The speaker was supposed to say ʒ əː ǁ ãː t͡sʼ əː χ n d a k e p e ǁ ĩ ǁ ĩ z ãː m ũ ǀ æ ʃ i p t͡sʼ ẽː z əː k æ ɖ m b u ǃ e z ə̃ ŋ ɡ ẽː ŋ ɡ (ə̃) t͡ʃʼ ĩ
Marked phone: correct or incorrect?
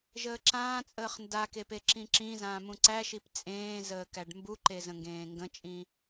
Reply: correct